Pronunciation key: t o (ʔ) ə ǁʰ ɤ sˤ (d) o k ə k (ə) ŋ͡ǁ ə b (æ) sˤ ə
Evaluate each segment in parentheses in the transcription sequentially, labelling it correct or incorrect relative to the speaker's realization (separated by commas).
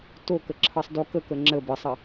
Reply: incorrect, correct, correct, incorrect